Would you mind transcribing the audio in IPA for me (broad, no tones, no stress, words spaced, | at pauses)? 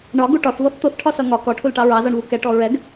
ɳɒɡu ʈɒθvʌθ t̪ʊθʈʰɒsʌ ŋɒ kɔʈʰulʈɑ ɹɑzɒɳvu kɛʈɔ ɹɛɡ